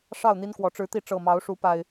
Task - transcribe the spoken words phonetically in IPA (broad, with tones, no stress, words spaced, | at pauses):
ʂɑ˥˨ʊ̯n̪i˦nkwɔ˨˩ ʈ͡ʂɻ̩˨˦t̪i˨˦ ʈ͡ʂɤ˨˩mɑ˨˦ʊ̯ʂu˨˦ pa˦ɪ̯